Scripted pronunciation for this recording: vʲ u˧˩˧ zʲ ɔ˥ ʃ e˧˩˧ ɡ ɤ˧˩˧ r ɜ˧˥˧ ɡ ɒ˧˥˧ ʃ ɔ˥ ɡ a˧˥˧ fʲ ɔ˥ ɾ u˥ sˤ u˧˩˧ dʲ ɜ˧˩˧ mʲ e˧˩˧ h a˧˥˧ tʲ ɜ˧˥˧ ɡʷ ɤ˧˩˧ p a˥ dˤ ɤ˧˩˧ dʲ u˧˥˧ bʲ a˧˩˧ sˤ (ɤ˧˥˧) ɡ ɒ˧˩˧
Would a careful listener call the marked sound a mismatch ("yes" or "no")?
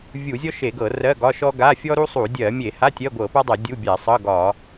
no